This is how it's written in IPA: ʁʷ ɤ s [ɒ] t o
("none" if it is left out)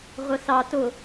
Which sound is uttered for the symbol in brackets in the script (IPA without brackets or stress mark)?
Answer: ɑ